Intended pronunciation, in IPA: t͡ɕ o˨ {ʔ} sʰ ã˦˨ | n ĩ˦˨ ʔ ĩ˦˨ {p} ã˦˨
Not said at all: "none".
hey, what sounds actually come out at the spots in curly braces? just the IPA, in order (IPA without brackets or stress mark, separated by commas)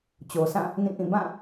none, b